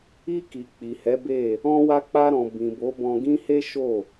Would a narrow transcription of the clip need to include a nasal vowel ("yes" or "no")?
yes